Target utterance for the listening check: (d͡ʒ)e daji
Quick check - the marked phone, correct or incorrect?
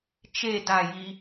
incorrect